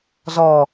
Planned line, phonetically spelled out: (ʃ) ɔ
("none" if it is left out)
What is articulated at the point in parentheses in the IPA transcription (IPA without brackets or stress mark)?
z